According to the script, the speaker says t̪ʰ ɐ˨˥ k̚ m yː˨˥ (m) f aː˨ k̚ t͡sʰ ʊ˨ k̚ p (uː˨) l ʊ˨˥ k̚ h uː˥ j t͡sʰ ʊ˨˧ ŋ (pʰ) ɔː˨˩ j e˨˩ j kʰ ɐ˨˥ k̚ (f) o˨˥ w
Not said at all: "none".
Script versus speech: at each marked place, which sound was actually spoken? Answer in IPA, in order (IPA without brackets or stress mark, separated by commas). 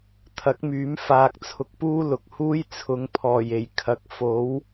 m, uː˥, pʰ, f